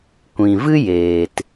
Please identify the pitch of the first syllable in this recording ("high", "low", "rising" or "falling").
low